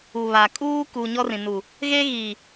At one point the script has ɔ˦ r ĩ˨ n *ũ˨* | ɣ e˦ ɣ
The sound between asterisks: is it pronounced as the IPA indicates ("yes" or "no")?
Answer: no